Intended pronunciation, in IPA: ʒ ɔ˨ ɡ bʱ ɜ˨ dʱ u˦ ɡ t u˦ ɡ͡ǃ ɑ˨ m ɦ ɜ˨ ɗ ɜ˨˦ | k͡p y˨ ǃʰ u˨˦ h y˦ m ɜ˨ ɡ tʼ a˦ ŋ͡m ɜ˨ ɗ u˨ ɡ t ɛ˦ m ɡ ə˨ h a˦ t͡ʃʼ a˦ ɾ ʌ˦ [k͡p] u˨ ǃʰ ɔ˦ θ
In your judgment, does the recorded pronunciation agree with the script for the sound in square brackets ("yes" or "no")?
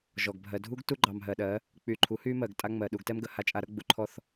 no